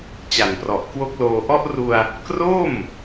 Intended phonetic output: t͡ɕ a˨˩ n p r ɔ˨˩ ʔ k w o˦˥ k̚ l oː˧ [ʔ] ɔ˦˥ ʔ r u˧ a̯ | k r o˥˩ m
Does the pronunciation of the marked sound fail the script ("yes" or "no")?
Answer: no